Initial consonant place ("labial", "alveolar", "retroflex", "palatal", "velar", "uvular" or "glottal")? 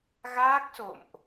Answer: velar